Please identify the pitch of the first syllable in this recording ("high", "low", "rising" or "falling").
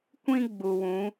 high